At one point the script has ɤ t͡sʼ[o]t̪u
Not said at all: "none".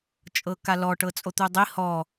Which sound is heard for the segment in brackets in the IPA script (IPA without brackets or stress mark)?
o